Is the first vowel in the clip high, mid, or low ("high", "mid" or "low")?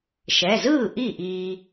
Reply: mid